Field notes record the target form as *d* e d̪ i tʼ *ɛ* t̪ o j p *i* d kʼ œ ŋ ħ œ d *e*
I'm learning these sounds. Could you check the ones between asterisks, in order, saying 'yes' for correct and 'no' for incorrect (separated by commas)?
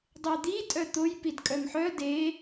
no, no, yes, yes